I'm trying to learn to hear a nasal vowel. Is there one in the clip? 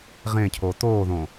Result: yes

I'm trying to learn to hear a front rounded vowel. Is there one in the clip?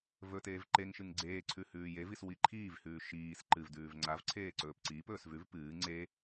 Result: no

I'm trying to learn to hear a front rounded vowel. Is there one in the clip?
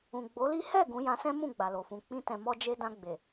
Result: no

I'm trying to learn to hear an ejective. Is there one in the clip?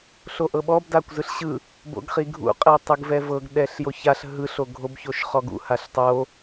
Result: yes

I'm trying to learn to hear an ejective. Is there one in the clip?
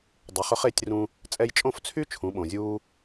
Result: yes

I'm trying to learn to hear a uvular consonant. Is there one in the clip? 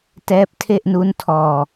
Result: no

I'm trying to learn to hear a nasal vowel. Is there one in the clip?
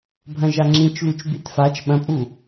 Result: yes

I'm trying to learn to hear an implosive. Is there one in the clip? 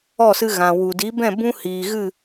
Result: no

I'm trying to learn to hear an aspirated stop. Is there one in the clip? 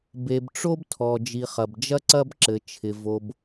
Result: yes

